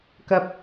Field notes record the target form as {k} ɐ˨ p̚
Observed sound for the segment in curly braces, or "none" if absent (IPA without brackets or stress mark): k